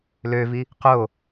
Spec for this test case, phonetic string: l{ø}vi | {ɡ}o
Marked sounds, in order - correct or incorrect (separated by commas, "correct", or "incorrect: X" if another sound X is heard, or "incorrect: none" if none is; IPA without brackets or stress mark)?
correct, incorrect: q